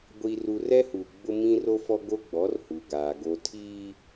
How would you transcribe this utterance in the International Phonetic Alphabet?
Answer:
ɡʷ i˨ r u˨ r ɛ˦ h u˨ ɡ͡b ʊ˦ m ĩ˦ r o˦ f ɔ˦ ɡ o˦ ɡ͡b ɔ˨˦ r h u˨ ɡ aː˨ ɡ o˨ tʰ iː˦

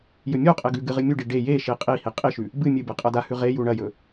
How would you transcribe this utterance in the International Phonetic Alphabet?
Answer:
j ɵ mʲ o qʼ e ɡ ʉ ɡ ɨ ʁ ɨ mʲ u ɖ i ɖ e j e ʃ i qʼ i h i qʼ i ʃ ʉ | b ɨ mʲ ɨ b e qʼ ɐ d a h ʉ ʁ e j u ɳ ɐ j ɵ

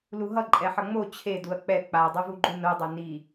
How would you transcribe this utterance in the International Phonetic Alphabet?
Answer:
l u ɦ ʌ ǃʼ ɛ ħ ʌ ŋ͡m o t͡ɕʰ e d u ɐ̯ k͡p ɛ k͡p a dˤ u v u ɡ͡ǃ u n o dˤ o n i

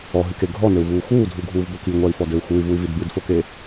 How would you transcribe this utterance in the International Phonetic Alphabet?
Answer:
ɔ ɦ ɨ k e ɡʱ ɔ n ɘ u̯ v uː x uː dʱ u ɡʱ uː v b o k i ŋʷ a i̯ f ɔ d ɘ u̯ x u y̯ v u y̯ v i d b ɨ d f o k e

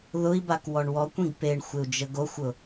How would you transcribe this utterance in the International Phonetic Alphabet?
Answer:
ð ʊ i̯ b a k w ɔ ɳ w ɔ kʷ ĩ ɡ p e ɳ xʷ ɪ u̯ d͡ʒ ə ɡ o xʷ ʊ

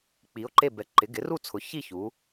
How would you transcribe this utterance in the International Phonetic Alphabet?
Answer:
k͡p i˩˥ o̯ ǃ e˥˨ b ɛ˩˥ ǃ ɪ˩˥ ɡ ɪ˩˥ r u˥˨ t͡sʰ ʊ˩˥ ç i˥˨ ç u˩˥

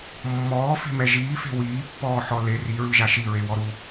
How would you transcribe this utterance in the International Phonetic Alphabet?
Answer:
mː ɔː f e̤ m ɛ ʒ iː f e̤ w iː pː ɔː ħ ɔ l e r i ɹ ɯ ʒ a ʃ i ɹ e w ɔ ɾ u

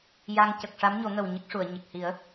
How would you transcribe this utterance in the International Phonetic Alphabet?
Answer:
j a˧ ŋ c ə˨˩ k̚ ʂ a˧˥ m ɲ o˨˩˦ ŋ ə˨˩ w ɲ ə˦˥ k̚ ʂ u˨˩˨ ə̯ ɲ ə˨˩ k̚ h i˨˩˦ ə̯

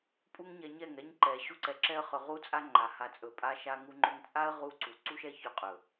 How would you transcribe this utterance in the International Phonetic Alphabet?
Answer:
pʼ u˦ ŋ ɲ ɛ˧ ɲ ɛ˦˨ ŋ ɛ˦ ɲ ǃ ɛ˨ ɕ u˦ ǀ ɛ˧ ǁ ɛ˧ ə̯ χ ɵ˨ ʁ u˦ t͡sʼ a˦ ŋ͡ǃ a˨ h a˨ t͡sʼ ɵ˨ pʼ a˧ ʃ a˦ ŋ u˦ ŋ͡ǃ ɵ˦ ŋ t͡sʼ a˦ ə̯ ʁ u˧ ǀ u˨ ǀ u˦ ʃ ɛ˦ ç ɵ˧ qʼ ɵ˨

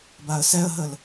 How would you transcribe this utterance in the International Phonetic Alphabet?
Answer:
b a ə̯ s ɛ ə̯ ɦ ə l

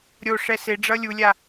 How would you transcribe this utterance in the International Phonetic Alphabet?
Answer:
ɾʲ o ʂ ɛ s e ɖ͡ʐ ʌ lʲ u lʲ a

